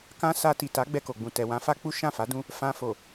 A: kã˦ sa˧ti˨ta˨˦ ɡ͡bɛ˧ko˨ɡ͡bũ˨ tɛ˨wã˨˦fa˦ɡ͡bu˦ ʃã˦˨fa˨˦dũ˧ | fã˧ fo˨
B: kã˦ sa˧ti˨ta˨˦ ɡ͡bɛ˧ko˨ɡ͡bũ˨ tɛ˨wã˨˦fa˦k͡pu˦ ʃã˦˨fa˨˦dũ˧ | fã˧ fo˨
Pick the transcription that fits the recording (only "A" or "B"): B